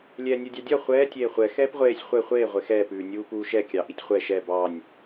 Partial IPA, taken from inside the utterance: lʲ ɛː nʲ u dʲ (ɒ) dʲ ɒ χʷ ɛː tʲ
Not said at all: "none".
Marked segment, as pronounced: ɑ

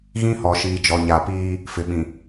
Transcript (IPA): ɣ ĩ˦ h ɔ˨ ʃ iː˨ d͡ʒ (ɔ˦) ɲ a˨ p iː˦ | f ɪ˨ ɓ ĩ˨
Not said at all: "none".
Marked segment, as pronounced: ɔ˨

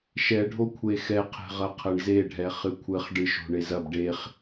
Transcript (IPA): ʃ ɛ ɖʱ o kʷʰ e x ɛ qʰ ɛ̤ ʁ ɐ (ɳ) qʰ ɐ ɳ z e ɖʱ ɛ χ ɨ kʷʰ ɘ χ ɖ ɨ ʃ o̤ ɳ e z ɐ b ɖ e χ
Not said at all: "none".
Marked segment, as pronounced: none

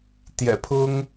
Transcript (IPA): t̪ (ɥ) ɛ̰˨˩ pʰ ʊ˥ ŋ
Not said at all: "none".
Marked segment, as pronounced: j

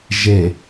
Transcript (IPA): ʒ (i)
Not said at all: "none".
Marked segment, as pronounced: e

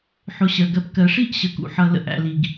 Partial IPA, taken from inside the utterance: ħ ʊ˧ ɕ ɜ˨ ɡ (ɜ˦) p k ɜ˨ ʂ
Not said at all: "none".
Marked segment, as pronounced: ɜ˧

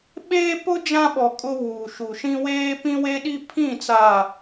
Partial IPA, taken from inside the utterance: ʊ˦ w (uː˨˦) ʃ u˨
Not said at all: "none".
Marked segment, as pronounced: uː˨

